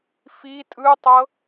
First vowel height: high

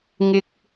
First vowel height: high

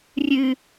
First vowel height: high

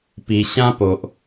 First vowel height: high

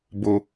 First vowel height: mid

